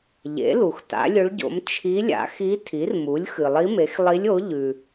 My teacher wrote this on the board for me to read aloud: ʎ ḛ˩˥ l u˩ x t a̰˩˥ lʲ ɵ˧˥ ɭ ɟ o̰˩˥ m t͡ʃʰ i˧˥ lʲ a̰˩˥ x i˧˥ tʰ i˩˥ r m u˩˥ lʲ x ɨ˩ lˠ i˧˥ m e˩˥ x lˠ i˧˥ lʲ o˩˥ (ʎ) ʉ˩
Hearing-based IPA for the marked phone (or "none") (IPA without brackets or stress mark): ʎ